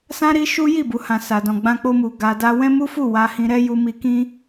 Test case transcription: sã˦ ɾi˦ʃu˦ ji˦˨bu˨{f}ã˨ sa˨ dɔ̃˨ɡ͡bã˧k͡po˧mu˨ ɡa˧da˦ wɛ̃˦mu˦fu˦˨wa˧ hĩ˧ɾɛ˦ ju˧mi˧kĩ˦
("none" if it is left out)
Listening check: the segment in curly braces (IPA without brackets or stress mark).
h